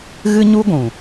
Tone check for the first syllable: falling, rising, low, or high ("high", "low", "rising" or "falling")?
high